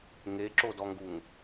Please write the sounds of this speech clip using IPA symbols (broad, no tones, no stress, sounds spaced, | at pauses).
ŋ e ǁ o d ɔ ŋ ɡ u ŋ